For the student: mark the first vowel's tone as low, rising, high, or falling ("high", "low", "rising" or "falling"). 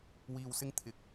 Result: low